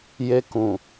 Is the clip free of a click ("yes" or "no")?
yes